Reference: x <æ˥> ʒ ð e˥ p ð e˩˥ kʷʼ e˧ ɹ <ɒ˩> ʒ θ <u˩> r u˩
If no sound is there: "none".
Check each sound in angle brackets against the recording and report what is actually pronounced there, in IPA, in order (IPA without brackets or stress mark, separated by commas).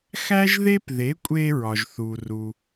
æ˥, ɒ˩, u˩